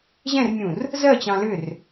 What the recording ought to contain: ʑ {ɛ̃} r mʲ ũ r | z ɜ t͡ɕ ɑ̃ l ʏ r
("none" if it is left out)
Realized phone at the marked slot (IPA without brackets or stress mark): ɛ̃